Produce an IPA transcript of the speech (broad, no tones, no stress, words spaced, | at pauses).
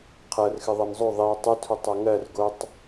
qʰɜrxɨ ðˤɜnzˤo ðˤio̯ tˤɨtʰutˤ oŋɜr ɡotˤ